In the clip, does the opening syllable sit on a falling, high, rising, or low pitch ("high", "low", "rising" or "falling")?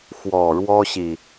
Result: low